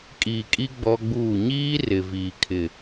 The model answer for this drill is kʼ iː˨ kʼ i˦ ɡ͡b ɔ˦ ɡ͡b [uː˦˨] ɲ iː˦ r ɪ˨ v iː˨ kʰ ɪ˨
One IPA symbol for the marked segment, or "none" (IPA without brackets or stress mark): uː˦˨